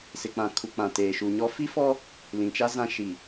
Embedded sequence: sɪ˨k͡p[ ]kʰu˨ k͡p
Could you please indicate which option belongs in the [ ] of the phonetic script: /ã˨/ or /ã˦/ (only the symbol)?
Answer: ã˨